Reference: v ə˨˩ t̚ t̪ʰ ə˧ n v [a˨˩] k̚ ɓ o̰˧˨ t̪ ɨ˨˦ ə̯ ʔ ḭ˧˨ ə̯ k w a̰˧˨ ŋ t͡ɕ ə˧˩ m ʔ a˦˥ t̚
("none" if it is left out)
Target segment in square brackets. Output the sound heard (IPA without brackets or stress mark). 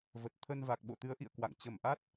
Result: a˨˩